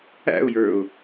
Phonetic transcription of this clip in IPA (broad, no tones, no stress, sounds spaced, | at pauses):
æ̰ ʊ̯ j ə˞ ʊ̯